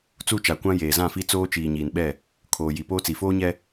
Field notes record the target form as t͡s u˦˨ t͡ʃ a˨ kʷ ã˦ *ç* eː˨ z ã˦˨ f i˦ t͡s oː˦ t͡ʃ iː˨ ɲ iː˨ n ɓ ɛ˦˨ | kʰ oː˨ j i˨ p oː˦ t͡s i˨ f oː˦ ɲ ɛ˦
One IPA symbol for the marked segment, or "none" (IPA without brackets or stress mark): j